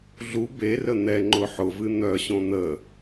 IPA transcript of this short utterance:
ɮ u b e r ə n̪ ɛ ŋ͡ǃ ʊ ħ ʊ v ɨ n̪ œ ɕ õ n̪ ə

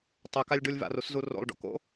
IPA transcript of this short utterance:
tˤ œ k a lʲ ɖ u lʲ v a̰ r u s z u r o̰ lˠ ɖ o̰ k o̰

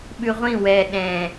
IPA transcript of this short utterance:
ɓ ʉ ʁʷ ĩ w ɛ ɗ ɛ̃

